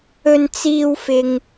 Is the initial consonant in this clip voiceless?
no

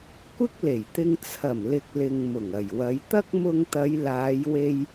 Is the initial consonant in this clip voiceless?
yes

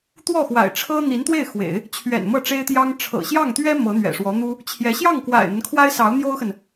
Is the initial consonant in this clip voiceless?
yes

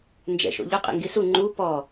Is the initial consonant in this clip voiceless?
no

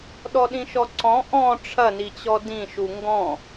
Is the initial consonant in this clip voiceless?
no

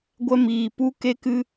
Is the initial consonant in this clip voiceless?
no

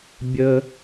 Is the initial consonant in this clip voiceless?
no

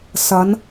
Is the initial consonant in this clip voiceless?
yes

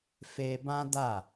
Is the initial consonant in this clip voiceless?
yes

